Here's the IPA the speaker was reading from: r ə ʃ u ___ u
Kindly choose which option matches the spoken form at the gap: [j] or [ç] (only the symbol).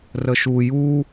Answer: j